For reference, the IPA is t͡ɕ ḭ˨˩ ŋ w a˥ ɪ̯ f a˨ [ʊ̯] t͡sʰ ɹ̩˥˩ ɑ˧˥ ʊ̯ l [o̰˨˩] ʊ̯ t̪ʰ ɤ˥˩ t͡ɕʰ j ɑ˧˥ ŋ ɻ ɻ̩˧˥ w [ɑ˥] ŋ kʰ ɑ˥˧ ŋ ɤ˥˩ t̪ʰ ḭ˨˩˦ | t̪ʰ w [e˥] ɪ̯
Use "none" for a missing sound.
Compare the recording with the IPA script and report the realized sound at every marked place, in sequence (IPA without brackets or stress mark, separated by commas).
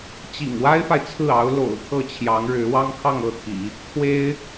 ɪ̯, o̰˨˩, ɑ˥, e˥